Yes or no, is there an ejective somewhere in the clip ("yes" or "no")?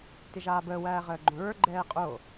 yes